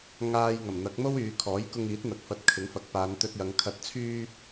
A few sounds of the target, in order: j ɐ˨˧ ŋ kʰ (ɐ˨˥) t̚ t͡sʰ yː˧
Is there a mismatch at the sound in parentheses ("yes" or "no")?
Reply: no